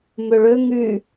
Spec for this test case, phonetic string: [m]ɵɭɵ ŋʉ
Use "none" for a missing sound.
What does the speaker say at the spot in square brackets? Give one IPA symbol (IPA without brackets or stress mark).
m